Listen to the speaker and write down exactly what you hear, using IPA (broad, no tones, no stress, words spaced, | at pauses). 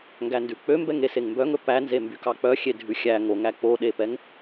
ŋɡændʉk͡pømbɛŋ eseŋmbœŋɵ pænze mbykɑk͡pœ xʲedʱʉxʲæ ŋoŋæ k͡poɗepɛŋ